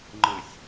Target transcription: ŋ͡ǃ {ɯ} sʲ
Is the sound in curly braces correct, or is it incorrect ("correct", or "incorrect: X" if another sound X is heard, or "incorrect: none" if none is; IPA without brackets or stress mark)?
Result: correct